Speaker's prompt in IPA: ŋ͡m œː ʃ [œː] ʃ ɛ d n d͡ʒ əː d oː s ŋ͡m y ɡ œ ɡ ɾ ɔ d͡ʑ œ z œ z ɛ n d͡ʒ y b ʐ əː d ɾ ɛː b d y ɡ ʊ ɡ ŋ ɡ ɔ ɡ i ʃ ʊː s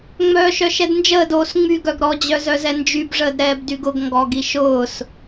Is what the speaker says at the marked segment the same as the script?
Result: no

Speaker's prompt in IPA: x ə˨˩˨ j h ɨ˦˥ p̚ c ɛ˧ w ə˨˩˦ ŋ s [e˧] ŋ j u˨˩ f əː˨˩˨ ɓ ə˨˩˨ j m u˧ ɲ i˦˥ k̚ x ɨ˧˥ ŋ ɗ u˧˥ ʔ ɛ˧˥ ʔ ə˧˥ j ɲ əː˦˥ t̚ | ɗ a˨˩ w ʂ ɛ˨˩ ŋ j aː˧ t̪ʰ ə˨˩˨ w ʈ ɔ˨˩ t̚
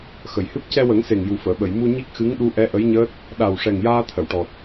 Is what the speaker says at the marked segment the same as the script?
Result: no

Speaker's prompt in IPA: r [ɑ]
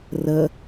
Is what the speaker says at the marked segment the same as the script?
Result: no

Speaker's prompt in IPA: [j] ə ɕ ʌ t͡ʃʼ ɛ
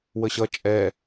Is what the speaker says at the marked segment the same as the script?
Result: no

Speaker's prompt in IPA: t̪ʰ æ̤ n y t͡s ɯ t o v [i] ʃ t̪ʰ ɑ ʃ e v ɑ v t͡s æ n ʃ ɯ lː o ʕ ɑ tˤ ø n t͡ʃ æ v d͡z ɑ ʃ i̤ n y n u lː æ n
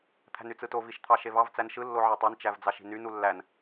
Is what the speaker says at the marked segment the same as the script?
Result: yes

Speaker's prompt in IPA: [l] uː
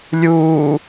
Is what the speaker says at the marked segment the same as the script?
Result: no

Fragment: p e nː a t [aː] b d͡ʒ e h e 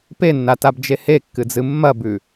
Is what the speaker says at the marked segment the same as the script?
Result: no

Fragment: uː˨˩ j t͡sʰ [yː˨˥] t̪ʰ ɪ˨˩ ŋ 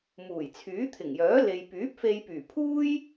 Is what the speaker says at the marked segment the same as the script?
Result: yes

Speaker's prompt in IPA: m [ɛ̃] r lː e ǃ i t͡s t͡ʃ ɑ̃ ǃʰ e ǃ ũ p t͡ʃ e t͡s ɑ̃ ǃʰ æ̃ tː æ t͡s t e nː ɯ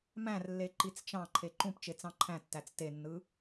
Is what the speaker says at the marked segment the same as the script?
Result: no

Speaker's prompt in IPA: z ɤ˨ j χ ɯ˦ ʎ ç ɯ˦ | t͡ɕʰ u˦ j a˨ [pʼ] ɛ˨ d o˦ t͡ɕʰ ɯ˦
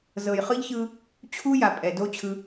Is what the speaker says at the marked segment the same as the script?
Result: yes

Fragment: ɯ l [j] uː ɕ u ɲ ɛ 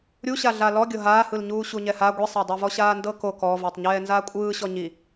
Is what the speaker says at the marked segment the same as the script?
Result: no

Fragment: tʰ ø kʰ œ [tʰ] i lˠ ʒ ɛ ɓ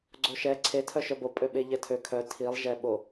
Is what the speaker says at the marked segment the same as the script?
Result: yes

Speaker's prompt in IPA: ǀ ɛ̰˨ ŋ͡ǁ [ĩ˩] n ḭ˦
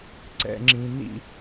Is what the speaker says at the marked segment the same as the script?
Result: yes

